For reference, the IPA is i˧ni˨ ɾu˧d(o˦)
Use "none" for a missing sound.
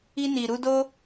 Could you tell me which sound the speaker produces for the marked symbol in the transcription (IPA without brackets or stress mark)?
o˦